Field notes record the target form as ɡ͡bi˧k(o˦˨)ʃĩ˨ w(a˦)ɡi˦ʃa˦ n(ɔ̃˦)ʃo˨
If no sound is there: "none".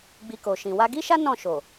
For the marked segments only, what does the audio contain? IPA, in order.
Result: o˨, a˧, ɔ̃˦˨

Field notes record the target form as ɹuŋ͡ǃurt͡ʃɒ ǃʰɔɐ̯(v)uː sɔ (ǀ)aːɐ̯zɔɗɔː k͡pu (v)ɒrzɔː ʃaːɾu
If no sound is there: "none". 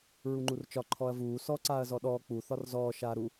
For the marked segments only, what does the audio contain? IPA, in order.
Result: v, ǀ, θ

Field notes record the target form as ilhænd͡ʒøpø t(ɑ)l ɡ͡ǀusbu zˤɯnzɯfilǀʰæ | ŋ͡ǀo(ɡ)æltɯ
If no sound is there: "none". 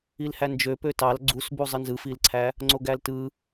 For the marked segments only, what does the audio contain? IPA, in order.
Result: ɑ, ɡ

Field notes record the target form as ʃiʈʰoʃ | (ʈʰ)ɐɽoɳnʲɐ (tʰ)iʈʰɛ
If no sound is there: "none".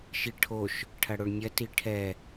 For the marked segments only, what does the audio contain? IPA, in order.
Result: ʈʰ, t

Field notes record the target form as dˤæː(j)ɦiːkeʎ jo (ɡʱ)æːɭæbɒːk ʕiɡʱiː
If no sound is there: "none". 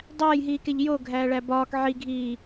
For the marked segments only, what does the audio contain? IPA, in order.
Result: j, ɡʱ

